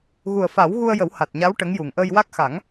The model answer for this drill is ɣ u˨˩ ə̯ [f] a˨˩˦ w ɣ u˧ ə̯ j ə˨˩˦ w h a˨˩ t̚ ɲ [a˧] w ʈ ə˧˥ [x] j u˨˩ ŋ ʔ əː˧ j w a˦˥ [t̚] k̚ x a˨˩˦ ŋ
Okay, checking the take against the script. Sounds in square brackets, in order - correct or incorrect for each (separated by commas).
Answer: correct, incorrect, incorrect, incorrect